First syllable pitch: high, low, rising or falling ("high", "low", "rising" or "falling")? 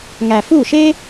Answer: low